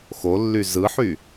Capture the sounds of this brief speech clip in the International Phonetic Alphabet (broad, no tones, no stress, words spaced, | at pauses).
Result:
xolːy zɯħy